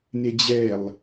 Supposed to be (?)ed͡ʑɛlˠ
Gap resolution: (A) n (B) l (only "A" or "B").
A